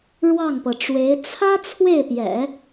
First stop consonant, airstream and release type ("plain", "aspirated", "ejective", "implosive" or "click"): plain